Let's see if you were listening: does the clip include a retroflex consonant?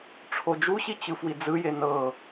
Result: yes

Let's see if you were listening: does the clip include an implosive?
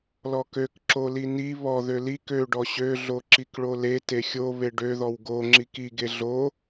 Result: no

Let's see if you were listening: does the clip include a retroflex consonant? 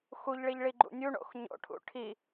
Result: yes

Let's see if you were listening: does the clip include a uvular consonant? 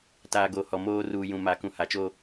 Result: no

